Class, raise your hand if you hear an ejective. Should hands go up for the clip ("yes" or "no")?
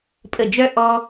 yes